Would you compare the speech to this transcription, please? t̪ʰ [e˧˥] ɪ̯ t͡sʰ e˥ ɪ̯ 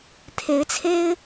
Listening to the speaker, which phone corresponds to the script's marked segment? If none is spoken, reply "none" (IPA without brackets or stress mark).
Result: e˧˥